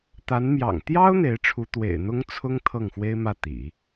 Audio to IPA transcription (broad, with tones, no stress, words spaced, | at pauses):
t̪a˧˥nmjɑ̰˨˩ŋ t̪jɑ˥ʊ̯ n̪e˧˥ɪ̯ʈ͡ʂʰu˧˥ t̪wḛ˨˩ɪ̯n̪ʊ˥ŋt͡sʰʊ˥ŋ t̪ʰɤ˥˩ŋxwe˥ɪ̯mä˥˩ t̪ḭ˨˩˦